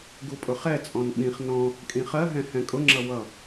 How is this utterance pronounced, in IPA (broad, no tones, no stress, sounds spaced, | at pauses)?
ɡ u pʼ ʊ χ ɛ t͡sʼ ɔ̃ n ɓ ĩ χ n ɔ̃ | kʼ ĩ χ ɜ ɦ ɛ̃ h ɛ̃ kʼ ʊ ŋ͡ǁ ʌ w ʌ